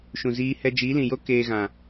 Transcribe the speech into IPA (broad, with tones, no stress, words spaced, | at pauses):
ʃũ˨ziː˧ hɛ˧d͡ʒiː˨˦lĩ˨jo˦ keː˧ɣã˨